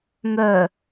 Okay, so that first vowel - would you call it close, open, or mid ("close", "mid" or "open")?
mid